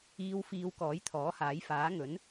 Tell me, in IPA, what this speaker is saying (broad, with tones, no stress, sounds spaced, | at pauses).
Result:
iː˧ w f iː˧ w k ɔː˨˥ j t̪ʰ ɔː˨˥ h aː˨˥ j f aː˨˥ ŋ ɵ˨˥ n